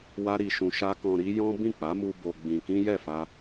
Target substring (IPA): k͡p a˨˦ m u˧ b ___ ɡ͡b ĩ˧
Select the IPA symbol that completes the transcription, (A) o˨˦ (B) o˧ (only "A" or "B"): B